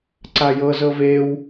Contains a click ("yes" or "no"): yes